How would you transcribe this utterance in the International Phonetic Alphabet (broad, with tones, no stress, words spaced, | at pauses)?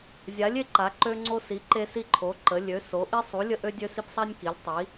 zʲa˨˦lʲe˨˦ ǃa˨˦ ǃø˦ŋ͡ǀo˦si˨˦ ǃe˦si˦ǃʰo˨˦ ǃə˨˦ lʲø˨˦so˨˦ ʔi˦sˤu˨˦lʲə˦ ʔø˦dʲø˦si˦psˤa˦nʲ ki˨˦lʲtˤi˨˦